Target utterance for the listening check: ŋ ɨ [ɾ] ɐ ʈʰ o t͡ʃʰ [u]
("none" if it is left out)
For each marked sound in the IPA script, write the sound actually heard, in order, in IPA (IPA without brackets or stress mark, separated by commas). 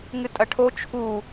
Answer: tʼ, u